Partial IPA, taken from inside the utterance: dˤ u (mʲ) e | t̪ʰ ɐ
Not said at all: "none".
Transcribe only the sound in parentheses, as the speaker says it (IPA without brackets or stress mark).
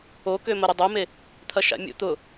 m